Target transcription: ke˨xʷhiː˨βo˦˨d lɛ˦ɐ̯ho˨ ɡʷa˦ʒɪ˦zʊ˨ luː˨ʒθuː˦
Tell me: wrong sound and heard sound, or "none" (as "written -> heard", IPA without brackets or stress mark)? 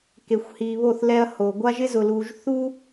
d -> θ